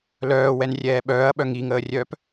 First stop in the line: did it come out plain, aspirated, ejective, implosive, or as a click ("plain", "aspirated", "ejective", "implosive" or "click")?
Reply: implosive